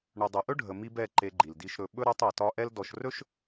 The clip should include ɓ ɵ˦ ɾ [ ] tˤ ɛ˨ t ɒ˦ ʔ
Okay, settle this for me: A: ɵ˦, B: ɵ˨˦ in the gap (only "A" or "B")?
A